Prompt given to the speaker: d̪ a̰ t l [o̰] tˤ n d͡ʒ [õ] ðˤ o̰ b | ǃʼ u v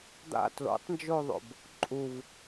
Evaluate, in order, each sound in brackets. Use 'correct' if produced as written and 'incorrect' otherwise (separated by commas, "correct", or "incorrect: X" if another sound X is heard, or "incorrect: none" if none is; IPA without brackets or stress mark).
correct, incorrect: o